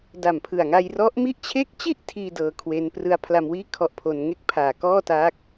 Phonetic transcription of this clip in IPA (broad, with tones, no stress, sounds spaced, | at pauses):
d a˨˩ m pʰ ɯ˨˩ a̯ ŋ a˧ j r ɔ˦˥ ʔ m i˦˥ ʔ t͡ɕʰ e˦˥ k̚ t͡ɕ i˥˩ ʔ tʰ iː˧ d ɤː˧ kʰ w e˦˥ n p r ɯ˦˥ a̯ pʰ l a˧ m w iː˥˩ kʰ ɔ˦˥ ʔ pʰ o˧ n ŋ e˥˩ k̚ pʰ aː˨˩ k ɔː˥˩ t aː˦˥ k̚